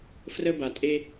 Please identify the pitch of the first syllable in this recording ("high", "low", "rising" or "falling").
high